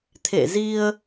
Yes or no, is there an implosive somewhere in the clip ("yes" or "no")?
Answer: no